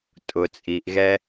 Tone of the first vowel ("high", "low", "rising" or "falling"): low